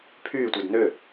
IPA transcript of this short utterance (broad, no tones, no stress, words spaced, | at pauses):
pʰyːtʷɛd nø